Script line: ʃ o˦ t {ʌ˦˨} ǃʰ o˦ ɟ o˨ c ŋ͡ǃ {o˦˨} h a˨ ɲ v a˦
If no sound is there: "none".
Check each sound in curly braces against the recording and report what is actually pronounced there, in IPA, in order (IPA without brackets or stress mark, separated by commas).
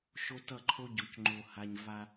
ʌ˦˨, o˨